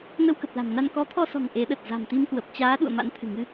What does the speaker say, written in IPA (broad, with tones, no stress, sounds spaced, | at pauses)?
n ə˧ w k ə˨˩ p̚ l a̤˨˩ m n a˧ n k ɔ˨˦ t̪ʰ ɔ˧ s ɔ̤˨˩ ŋ ʔ e˨˦ ɗ ə˨˩ t̚ z a̤˨˩ m t̪ i˧ m k w ə˨˩ p̚ t͡ɕ aː˨˦ ɗ ṵ˧˨ ə̯ m a̰˧˥ n t̪ʰ ɨ̤˨˩ ŋ ɨ˧